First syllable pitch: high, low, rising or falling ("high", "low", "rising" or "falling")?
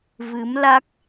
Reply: rising